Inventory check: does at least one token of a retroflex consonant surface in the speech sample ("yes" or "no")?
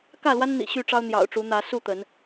yes